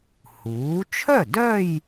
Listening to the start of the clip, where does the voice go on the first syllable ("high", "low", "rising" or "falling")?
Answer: rising